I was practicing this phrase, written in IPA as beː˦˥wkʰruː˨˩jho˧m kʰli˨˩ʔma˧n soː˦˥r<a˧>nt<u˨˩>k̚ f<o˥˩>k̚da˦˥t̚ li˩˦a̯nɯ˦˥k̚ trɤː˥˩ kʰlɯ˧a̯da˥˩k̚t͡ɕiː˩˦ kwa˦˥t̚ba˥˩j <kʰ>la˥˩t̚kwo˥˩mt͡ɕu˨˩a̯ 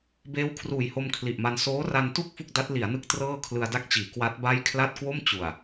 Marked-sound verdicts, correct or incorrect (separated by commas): correct, incorrect, incorrect, correct